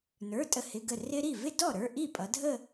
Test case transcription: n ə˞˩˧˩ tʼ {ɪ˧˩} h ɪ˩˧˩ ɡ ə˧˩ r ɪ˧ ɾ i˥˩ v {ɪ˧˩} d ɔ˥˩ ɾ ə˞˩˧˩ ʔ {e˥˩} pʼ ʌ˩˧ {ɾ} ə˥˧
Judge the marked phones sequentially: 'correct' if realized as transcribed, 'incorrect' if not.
incorrect: ə˧˩, incorrect: ɪ˥˧, incorrect: i˥˩, incorrect: dʱ

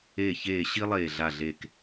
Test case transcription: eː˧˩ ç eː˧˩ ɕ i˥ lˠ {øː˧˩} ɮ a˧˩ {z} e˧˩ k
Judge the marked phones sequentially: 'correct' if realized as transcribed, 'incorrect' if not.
incorrect: eː˧˩, incorrect: ɮ

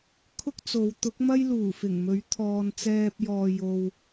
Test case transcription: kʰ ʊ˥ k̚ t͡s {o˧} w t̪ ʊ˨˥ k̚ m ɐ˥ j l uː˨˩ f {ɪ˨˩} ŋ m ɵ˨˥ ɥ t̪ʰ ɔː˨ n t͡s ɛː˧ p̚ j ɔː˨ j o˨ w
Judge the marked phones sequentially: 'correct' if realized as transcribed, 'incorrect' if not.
incorrect: o˨˧, correct

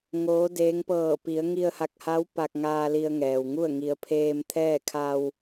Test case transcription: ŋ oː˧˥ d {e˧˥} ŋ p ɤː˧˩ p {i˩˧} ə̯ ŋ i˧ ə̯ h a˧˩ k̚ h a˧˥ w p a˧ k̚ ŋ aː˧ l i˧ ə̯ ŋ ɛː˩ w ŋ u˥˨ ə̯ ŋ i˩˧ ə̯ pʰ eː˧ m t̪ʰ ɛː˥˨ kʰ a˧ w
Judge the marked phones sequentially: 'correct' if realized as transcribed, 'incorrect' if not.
incorrect: eː˧˥, correct

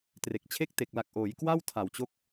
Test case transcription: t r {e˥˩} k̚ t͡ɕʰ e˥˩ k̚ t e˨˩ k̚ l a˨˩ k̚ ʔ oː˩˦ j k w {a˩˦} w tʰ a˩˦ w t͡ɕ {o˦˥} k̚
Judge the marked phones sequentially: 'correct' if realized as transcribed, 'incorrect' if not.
incorrect: e˨˩, incorrect: a˥˩, correct

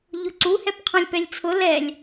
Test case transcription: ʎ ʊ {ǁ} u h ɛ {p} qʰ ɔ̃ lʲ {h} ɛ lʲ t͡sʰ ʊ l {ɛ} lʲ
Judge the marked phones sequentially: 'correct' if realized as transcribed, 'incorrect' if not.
incorrect: ǀ, correct, incorrect: p, correct

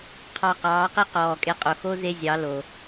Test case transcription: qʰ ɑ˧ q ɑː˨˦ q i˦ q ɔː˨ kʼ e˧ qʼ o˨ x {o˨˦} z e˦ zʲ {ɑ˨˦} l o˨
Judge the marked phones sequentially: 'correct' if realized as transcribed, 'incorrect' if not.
incorrect: o˦, correct

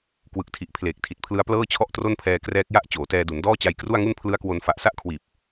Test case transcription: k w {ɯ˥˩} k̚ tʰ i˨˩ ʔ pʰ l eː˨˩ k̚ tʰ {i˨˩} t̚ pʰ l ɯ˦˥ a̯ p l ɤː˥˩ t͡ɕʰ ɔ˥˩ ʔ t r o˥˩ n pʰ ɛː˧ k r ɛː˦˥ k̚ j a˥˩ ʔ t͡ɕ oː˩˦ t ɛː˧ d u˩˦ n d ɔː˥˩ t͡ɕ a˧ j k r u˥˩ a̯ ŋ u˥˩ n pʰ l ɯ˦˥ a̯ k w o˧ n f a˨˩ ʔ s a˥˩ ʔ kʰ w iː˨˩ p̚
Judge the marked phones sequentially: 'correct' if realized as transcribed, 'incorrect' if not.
incorrect: ɯ˨˩, correct

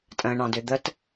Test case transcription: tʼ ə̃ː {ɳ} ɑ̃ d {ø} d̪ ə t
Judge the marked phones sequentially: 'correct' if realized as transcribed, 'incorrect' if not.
correct, correct

